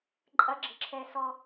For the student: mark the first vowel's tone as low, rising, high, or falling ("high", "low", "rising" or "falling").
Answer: high